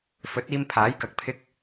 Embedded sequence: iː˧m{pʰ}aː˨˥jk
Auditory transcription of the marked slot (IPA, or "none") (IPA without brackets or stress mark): pʰ